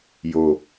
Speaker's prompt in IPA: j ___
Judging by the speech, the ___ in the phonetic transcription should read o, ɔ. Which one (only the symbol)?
o